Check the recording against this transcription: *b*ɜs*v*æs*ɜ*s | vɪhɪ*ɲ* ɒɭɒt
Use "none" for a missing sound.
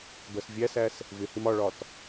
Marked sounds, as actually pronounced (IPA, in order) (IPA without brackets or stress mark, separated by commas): b, vʲ, æ, m